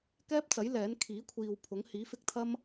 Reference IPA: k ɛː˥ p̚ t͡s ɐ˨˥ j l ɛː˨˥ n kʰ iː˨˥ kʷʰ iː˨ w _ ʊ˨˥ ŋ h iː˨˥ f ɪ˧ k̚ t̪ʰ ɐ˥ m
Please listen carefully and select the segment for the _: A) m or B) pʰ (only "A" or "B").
B